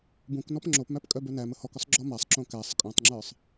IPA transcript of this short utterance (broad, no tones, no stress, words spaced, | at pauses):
bũknɔp ŋ͡ǁopmæp kʼœbœnæmə hɔkʏsˤ ɡ͡ǁɔmasˤǁõ kæsˤ kʼœ̃tˤŋ͡ǁə˞sˤ